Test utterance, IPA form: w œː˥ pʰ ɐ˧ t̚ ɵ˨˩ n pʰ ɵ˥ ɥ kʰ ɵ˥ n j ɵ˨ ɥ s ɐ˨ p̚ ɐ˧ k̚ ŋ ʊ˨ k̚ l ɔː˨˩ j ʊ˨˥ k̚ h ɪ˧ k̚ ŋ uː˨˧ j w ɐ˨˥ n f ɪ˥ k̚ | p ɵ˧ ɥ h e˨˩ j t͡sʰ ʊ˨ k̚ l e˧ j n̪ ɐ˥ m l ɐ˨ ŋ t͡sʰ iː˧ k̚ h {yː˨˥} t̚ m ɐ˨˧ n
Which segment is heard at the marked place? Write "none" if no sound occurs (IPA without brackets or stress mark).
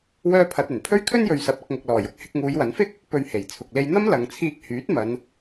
yː˨˥